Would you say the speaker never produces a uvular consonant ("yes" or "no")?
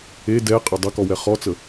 no